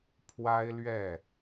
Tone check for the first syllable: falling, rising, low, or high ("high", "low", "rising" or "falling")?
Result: high